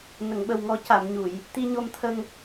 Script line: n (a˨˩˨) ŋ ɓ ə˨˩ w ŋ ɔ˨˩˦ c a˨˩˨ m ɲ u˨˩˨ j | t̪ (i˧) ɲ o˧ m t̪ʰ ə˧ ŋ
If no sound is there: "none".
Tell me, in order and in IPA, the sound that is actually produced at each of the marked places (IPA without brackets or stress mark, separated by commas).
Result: ə˨˩˨, i˧